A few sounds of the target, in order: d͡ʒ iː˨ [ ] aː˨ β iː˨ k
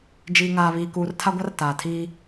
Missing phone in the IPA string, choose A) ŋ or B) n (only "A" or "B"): A